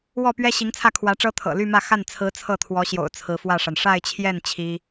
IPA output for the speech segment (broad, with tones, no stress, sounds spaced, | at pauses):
w ɔ˥˩ p ɥ ɛ˥ ɕ i˧˥ ŋ t͡sʰ ä˥˩ kʰ w ä˧˥ ʈ͡ʂ ɤ˥ t̪ʰ ɤ̰˨˩ l y˥˧ m ä˥˧ x a˥˩ n t͡sʰ ɹ̩˧˥ t͡sʰ ɤ˥˩ t̪ʰ w ɔ˧˥ ɕ j o̰˨˩ ʊ̯ t͡sʰ ɹ̩˧˥ f w ä˥˩ ʂ a˩ n ʂ a˥˧ ɪ̯ t͡ɕʰ j ɛ˥˩ n t͡ɕʰ i˥